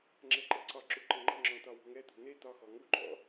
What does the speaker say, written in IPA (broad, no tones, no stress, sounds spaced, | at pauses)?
ŋ͡ǁ ɛ ǃ ɘ ǀ ɒ ǁ u ǃ ɘ ŋ͡ǃ ə̤ ŋ͡ǁ ɔ̃ t̪ ɒ w ṳ ŋ ɛ t̪ ṳ n̪ e t̪ ɒ x ɔ ŋ u ǃʼ ɔ̰